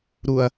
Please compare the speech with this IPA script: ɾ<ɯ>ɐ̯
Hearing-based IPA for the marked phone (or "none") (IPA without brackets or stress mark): u